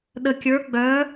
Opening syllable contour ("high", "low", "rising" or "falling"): low